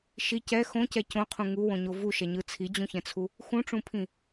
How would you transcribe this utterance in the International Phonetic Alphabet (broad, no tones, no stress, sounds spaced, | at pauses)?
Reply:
ʃ i c ɛ x õ c ɛ c õ qʰ ũ ŋ u w õ ɲ o v u ʃ ɛ ɲ ɯ t͡sʰ i d͡ʑ ũ ç ɛ̃ t͡sʰ u | x ũ ʈ͡ʂ ũ pʰ ĩ